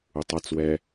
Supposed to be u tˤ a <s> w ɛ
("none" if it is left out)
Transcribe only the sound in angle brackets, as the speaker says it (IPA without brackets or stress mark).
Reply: t͡s